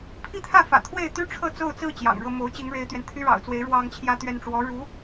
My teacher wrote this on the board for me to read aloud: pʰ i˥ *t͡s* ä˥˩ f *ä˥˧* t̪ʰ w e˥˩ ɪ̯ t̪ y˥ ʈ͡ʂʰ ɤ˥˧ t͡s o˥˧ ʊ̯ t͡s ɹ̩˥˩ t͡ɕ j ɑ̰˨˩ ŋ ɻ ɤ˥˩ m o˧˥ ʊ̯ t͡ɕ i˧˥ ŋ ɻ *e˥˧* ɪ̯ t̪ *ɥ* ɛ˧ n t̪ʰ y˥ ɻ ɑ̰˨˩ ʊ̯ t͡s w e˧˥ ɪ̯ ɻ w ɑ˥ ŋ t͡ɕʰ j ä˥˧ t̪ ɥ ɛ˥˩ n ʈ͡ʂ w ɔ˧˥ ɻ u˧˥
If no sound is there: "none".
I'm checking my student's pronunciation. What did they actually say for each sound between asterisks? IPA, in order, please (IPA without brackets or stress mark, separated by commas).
t̪ʰ, ä̰˨˩, e˧˥, ɥ